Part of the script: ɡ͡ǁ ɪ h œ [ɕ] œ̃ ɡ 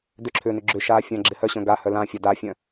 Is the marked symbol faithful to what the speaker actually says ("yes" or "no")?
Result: yes